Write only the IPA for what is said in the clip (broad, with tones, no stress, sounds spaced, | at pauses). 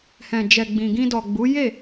h ɛ̃˨ d͡ʒ ɛ˨ ɡ͡b ĩ˨ ɡ ĩ˧ d ɔ˨ ɡ͡b u˨˦ j e˦˨